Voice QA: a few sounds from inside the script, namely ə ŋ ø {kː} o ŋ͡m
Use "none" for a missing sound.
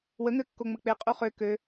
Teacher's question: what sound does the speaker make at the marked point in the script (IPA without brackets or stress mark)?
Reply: kː